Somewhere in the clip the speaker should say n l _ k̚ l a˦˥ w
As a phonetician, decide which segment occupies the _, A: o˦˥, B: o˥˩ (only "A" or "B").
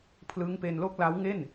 B